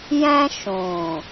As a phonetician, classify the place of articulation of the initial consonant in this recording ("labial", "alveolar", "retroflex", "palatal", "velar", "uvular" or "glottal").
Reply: palatal